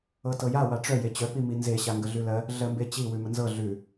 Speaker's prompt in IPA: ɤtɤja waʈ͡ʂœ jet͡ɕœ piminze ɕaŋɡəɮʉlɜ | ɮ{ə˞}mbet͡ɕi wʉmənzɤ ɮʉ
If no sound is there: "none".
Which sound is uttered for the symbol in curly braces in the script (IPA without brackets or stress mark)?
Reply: ɜ